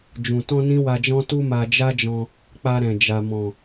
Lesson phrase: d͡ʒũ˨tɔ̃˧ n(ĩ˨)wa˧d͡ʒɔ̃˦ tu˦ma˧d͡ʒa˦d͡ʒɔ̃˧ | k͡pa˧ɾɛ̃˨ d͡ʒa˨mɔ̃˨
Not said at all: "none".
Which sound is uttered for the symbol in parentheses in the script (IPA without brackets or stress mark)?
ĩ˦